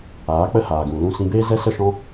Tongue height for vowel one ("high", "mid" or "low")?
low